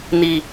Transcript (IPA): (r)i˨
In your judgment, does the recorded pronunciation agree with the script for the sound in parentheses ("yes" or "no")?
no